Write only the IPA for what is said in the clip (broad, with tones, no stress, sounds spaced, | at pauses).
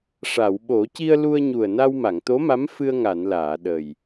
ʂ a˨˩˨ w ɓ o˨˩˦ c i˧ ə̯ l u˧ ə̯ ɲ u˨˩ ə̯ n a˧ w m a˨˩˨ ŋ t̪ o˧˥ m a˧˥ m f ɨ˧ ə̯ ŋ a˨˩˨ n l aː˨˩˨ ɗ ə˨˩ j